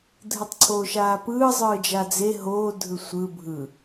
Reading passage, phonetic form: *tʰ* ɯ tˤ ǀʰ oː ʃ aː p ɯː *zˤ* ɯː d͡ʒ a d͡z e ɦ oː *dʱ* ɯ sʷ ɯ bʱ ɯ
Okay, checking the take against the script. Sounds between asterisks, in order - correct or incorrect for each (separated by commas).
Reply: incorrect, correct, correct